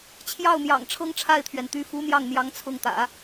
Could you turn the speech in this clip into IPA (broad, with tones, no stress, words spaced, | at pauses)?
t͡ɕʰjɑ˥˩ʊ̯n̪jɑ̰˨˩ŋ ʈ͡ʂʰɤ˥ŋʈ͡ʂʰa˥˩ɪ̯t̪ʰɥɛ˩nt̪y˧˥ fu˧˥ n̪jɑ˥˩ŋn̪jɑ˧˥ŋ t͡sʰʊ˥˩ŋt̪ä̰˨˩˦